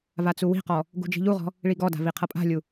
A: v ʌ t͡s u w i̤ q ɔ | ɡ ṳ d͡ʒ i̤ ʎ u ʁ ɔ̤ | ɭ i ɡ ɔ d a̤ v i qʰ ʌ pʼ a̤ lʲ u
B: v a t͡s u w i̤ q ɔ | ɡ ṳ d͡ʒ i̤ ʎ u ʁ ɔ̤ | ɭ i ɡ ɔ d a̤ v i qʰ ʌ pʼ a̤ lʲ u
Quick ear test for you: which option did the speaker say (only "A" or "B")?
B